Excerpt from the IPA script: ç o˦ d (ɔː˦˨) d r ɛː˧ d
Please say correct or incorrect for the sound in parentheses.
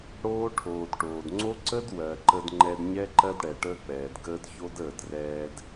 incorrect: əː˦˨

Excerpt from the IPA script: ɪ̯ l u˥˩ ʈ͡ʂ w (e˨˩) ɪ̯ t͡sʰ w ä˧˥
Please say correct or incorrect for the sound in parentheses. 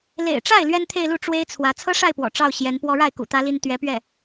incorrect: e˥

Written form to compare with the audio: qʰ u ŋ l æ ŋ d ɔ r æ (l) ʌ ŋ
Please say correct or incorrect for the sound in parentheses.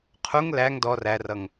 incorrect: r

